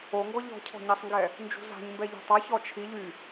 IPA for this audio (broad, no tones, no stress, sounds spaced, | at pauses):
o ŋ ɡ ɔ ʎ ɔ̤ cʰ ɔ̤ ɲ a sˤ ŋ ɡ ɛ | n d͡ʒ ṳ z a̤ ɲ m b ɛ ʎ ɛ̤ tˤ a ç ɔ t͡ʃʰ i ʎ y